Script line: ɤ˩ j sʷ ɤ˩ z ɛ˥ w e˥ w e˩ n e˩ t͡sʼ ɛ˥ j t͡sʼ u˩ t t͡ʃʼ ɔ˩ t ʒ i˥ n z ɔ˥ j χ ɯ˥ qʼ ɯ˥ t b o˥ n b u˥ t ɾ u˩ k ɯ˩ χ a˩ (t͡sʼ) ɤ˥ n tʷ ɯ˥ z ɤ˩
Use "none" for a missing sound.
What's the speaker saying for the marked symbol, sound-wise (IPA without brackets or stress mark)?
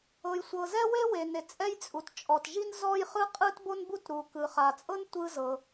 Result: t͡sʼ